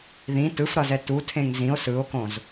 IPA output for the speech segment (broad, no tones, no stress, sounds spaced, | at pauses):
ð ĩ t ɯ f ɾ ʌ z ɛ t u tʰ ẽ ŋ z ĩ o̯ s ɯ o̯ k õ z